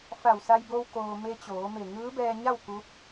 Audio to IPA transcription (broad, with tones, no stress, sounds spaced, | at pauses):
f a˧˩ w s a˧ j b o˧ w k oː˩ m e˧ t͡ɕ oː˩˧ m e˧˩ ŋ ɯː˧˥ b ɛː˧ ɲ a˥˨ w k u˧˥ p̚